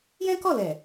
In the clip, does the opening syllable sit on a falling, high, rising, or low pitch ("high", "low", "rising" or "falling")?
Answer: high